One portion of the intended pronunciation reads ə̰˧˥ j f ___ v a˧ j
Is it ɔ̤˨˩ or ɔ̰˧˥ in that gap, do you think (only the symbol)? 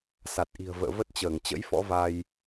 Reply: ɔ̰˧˥